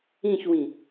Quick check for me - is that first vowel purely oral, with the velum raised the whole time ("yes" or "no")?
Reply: no